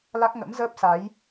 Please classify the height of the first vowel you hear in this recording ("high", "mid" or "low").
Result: low